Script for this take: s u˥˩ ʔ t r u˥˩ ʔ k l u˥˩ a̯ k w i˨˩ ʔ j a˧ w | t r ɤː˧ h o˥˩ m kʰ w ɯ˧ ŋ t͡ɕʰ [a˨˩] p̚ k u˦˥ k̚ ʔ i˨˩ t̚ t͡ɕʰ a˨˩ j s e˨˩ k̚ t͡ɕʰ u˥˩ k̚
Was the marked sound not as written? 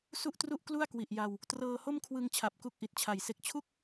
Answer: no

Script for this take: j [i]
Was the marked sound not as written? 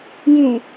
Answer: yes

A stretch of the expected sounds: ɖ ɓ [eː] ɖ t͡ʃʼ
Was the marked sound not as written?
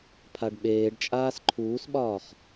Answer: no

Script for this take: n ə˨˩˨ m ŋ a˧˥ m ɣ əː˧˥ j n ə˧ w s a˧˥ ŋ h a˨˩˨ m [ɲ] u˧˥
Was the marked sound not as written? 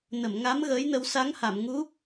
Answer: yes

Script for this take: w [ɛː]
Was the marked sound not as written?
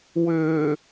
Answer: yes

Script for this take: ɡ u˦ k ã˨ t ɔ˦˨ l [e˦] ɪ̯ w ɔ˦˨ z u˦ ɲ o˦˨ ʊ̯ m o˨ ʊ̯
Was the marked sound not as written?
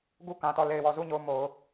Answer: yes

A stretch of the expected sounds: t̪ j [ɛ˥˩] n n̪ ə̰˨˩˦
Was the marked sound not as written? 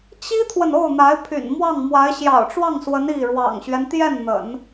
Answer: no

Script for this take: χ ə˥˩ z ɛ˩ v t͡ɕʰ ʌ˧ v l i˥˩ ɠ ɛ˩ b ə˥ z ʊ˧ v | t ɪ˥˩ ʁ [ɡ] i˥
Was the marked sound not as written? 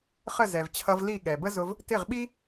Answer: yes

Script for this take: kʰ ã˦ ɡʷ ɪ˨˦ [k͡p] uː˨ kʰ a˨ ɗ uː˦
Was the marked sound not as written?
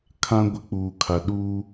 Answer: no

